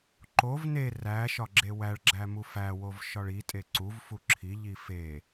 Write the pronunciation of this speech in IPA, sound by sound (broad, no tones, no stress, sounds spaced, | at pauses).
ǃ o v n e r æ ʃ ɒ ɡ͡ǁ e w æ ɭ ɡ͡ǁ æ m u f æ w o v ʃ ɒ ɭ i tʼ e ǀ u v f u ǁʰ i ʎ i f e